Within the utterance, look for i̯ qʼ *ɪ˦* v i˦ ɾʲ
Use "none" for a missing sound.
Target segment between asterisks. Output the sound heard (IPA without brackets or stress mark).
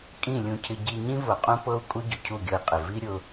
ɪ˨